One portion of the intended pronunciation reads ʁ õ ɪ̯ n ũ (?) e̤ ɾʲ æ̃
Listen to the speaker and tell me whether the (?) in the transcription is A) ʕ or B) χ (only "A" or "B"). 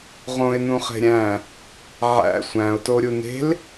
B